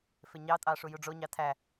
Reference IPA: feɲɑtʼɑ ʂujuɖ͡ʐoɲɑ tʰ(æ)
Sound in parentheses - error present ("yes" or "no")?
no